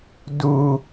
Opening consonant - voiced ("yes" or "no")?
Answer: yes